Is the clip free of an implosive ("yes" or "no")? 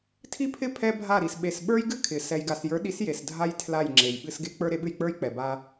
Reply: no